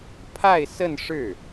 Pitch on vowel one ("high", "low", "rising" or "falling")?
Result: falling